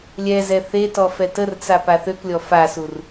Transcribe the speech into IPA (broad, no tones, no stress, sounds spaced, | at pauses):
lʲ ɛ z ɛ θ e t ɔ f ɛ t ə r t͡s a p a θ ø k lʲ ɔ f a s u r